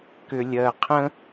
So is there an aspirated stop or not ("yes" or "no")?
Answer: yes